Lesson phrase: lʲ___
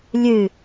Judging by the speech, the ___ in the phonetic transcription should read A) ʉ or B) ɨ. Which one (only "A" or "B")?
B